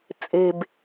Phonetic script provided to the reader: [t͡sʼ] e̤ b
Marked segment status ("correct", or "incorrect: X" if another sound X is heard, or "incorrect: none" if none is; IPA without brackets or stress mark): correct